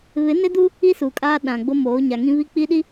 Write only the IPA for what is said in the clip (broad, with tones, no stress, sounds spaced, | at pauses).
β ɪ˨˦ n ɪ˦ d u˦ | i˦ s uː˨ kʼ aː˦ ɗ ã˨ ɡ͡b o˦ m oː˨˦ ɲ a˨ ŋ ĩ˦ β i˦ k͡p i˦ ɗ i˦